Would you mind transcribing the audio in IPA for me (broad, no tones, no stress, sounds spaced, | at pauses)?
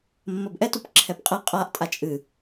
mː ɐ b ʔ ɛ t u p ǁʰ ɛ p qʼ ɛ qʼ a ʔ tʼ a t͡ʃʼ ɨ